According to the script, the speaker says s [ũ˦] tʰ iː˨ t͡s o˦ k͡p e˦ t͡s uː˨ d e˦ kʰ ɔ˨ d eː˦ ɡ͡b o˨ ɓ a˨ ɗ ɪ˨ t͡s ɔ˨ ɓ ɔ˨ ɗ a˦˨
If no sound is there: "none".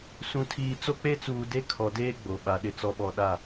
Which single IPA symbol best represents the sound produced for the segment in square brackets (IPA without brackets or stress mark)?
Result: ũ˨